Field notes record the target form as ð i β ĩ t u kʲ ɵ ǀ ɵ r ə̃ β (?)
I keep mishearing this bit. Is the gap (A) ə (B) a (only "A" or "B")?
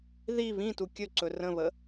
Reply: A